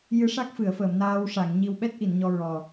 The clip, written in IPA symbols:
jɨ˧˥ʂa˦˥k̚fɨ˨˩˨ə̯fəː˨˩˨m naː˧wʂa˨˩˨ŋɲi˧w ɓɛ˦˥t̚ʔi˨˩˨n ɲɔ˧ɹɔ˨˩

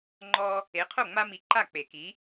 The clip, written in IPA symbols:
ŋ͡ǃɔ˦ | e˨˥qʰo˥˩ŋ͡ma˦mi˨˥ ǃa˥˩k͡pe˨˩˦ki˨˥

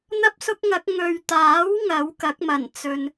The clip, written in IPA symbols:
n̪ɐ˥p̚sʊ˥k̚ŋɐ˨˥k̚ ŋɵ˨ɥt̪aː˨˥w ŋɐ˨˥wkɐ˨˥k̚mɐ˨˩n t͡sɵ˧n

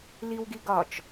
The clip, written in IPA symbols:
liwɡiɡɒt͡ʃ

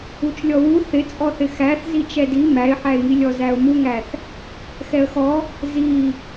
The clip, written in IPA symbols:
ut͡ʃlʲɔwu θɪt͡sʼɔθɪ xæθ zit͡ʃɛdi mæɪ̯ħæɪ̯ŋilʲɔ zæʊ̯muŋæθ | xɛə̯xɔ | zi

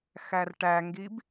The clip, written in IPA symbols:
xærʈæŋɡib

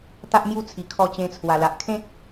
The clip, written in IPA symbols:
t̪a˦ʔmju˦t͡sʰi˨˩ kʰɔ˧t͡ɕẽ˧t͡sʰwa˨˩la˨ʔ kʰẽ˦k̚

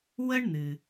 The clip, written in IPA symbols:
wə˥ɳn̪ɨ˩

